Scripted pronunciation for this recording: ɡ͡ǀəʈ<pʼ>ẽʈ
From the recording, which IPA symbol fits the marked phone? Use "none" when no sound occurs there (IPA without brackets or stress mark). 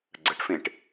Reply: f